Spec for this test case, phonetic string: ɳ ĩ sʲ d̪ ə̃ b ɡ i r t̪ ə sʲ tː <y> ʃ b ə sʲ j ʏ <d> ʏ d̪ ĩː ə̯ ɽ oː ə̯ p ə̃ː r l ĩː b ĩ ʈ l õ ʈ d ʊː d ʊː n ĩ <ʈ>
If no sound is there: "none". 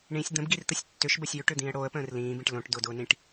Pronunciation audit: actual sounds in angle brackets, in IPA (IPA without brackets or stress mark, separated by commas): ʏ, ʈ, ʈ